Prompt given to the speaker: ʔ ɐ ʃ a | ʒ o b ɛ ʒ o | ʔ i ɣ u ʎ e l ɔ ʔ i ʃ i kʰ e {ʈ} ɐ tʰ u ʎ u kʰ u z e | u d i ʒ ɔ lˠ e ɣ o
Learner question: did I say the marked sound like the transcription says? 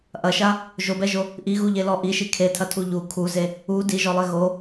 no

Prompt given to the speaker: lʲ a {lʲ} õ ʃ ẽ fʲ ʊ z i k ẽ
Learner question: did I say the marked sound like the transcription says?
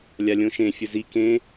yes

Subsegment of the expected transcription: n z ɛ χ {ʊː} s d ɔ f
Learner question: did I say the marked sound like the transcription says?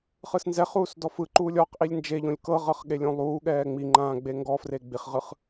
no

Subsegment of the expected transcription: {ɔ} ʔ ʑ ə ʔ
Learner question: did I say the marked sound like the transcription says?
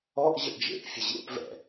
yes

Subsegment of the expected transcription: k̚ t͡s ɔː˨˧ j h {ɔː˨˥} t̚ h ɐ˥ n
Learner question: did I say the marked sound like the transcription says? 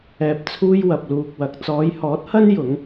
yes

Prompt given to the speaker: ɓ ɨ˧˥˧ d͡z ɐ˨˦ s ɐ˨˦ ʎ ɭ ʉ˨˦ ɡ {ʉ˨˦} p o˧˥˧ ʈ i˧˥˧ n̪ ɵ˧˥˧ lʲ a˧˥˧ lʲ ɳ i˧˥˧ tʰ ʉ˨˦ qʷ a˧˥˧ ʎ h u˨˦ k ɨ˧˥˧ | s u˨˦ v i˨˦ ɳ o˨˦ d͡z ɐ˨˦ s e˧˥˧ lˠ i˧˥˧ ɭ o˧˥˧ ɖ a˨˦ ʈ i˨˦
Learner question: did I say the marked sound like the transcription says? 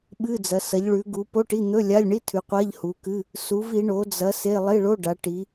no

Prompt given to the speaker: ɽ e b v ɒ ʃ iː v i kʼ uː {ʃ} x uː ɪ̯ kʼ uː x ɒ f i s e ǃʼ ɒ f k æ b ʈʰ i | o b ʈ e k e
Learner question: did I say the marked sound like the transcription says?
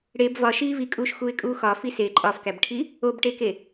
yes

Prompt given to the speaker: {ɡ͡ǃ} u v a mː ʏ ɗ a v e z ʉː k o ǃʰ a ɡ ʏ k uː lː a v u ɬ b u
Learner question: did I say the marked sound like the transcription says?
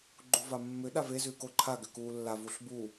yes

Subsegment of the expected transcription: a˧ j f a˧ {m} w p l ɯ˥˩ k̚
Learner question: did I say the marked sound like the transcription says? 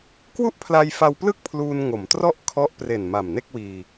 no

